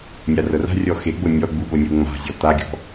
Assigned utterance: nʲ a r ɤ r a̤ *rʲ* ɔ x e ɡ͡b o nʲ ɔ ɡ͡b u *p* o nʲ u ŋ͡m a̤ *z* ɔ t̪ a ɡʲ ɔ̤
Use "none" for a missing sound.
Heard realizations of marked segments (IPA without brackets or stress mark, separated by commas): rʲ, ɓ, zʲ